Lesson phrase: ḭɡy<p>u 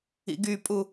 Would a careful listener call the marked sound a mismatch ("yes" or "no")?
yes